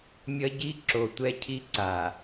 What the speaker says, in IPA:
mʲ ʌ˦ ɟ i˦ ǁ o˨ tʷ ɛ˦ cʰ i˦ ǀ a˨

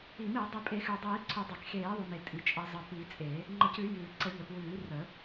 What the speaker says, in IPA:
i˨˩˦ m i˨˩˦ dˤ i˨˩˦ pʼ e˨˩˦ x ʉ˩ dˤ iː˨˩˦ ǀʰ ʉ˨˩˦ dˤ e˩ k x eː˨˩˦ ðˤ ʉ˩ m e˩ tʼ i˩ t͡ʃʼ ə˨˩˦ zˤ ə˩ p i˨˩˦ t͡sʼ e˨˩˦ | ŋ͡ǃ ə˨˩˦ c ʉ˨˩˦ j ʉː˩ ǀ ə˨˩˦ ʎ ə˩ p w ʉː˨˩˦ r ə˨˩˦

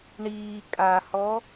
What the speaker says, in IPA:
ɳ iː kʼ a h ɔ

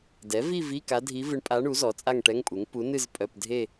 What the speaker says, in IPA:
d ɛ˩˥ v i˥˧ v i˧˥˧ k a˧˥ dʱ i˧˥ v ɨ˧˥ ɳ pʼ a˧˥ ɳ u˩˥ z ɔ˩˥ t͡sʼ a˥˧ ŋ ʈ ɛ˧˥˧ ŋ pʼ u˩˥ ŋ p u˧˥ n ɨ˥˧ z pʼ œ˧˥˧ p dʱ e˥˧

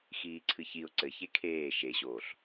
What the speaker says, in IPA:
x iː ǀʰ ɨ ç i ʊ̯ ǀ ɘ ç e kʰ eː ʃ e ɕ oː ɬ

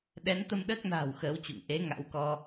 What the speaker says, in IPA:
ɗ ɛ˨˦ n t̪ ə˧ m ɗ əː˦˥ k̚ n a̤ː˨˩ w x əː˨˦ w t͡ɕ ṵ˧˨ ŋ ʔ e˨˦ ŋ a̰˧˥ w k ɔ˧

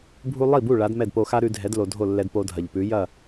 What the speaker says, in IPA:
bʱ u˥ lˠ i˥˩ b u˥˩ ɭ a˩˥ d m ɛ˥˩ d p o˧ x a˥ ɾ ʉ˧ dʱ ɛ˩˥ d l o˩ dʱ o˥˩ lː ɛ˧ d p o˧ dʱ ɐ˩ ʎ p ʉ˩˥ j ɐ˥˩

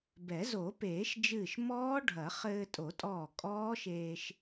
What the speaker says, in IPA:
b ɛ˨˩˦ z o˨˩˦ p eː˨˩˦ ʃ d͡ʒ ɨː˧˩ ʃ m ɔː˦˥ ɖʱ ɐ˨˩˦ χ ɘː˧ tʼ o˨˩˦ tʼ ɔː˧˩ kʼ ɔː˦˥ ʃ eː˧ ʃ

